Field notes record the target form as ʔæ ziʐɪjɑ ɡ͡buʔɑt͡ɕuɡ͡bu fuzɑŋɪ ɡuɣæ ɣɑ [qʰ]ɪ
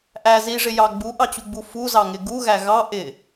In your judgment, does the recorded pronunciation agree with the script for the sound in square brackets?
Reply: no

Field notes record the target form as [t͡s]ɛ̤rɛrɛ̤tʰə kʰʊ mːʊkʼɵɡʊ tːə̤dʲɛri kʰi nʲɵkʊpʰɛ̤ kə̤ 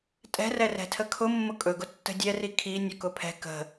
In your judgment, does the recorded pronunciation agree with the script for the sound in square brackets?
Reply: no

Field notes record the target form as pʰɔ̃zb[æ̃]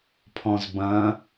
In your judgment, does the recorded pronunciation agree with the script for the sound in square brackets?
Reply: no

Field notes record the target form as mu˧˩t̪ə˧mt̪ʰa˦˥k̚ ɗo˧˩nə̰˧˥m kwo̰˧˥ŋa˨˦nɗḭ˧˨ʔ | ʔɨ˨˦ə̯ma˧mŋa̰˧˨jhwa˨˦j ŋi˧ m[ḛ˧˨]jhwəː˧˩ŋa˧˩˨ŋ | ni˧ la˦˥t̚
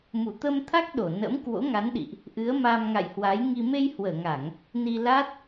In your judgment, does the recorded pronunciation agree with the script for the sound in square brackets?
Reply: no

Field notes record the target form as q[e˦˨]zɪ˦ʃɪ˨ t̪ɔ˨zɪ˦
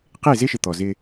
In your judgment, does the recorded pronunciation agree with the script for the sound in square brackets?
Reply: yes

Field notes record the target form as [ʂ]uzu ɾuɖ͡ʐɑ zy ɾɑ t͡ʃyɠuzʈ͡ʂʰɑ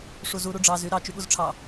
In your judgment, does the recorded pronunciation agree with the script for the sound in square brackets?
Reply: yes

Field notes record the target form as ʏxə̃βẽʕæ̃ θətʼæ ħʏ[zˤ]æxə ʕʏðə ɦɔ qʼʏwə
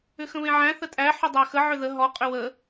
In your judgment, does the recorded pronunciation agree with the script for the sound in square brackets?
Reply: no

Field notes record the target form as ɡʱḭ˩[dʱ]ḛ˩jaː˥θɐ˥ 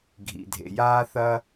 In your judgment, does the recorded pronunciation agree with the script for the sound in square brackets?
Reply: yes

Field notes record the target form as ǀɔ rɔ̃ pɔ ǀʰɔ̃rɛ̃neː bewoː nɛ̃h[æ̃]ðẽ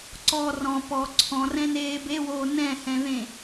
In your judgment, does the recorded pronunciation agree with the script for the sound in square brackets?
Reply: no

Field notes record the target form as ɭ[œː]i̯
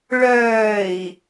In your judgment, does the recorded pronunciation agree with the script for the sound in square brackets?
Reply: yes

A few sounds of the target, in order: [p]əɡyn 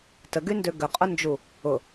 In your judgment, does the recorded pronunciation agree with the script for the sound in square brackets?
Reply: no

